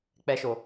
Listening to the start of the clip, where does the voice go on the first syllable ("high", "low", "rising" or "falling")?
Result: high